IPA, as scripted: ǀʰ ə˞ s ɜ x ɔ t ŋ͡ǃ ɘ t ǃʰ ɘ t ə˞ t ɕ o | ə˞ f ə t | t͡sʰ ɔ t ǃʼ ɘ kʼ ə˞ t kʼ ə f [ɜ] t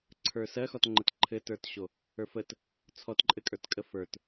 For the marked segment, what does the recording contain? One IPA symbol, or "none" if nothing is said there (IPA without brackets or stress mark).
ə˞